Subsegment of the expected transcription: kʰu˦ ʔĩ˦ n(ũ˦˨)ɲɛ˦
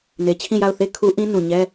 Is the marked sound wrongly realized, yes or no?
yes